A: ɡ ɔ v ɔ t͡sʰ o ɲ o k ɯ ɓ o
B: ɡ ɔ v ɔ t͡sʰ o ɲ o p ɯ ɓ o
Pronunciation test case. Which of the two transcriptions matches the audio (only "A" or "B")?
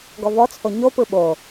B